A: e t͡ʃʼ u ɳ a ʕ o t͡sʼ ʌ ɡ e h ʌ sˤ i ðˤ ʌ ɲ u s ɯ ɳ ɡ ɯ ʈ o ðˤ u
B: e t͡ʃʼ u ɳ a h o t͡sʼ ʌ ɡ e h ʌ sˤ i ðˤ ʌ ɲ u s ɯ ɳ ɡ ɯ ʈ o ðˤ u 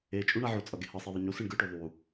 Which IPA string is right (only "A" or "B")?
A